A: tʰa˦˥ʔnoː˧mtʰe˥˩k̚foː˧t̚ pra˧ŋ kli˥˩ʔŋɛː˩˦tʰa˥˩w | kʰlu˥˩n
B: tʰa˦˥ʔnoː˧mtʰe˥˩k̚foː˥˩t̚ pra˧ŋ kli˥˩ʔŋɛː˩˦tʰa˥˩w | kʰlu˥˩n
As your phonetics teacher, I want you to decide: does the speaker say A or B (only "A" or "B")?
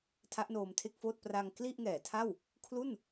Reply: B